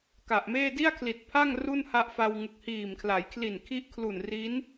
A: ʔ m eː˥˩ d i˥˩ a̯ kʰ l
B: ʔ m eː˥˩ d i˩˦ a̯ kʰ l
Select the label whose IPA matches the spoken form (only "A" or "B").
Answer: A